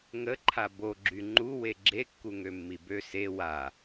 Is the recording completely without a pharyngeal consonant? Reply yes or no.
yes